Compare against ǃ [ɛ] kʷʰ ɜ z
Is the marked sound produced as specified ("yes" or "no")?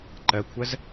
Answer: no